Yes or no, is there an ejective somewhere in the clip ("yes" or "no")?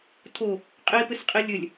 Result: yes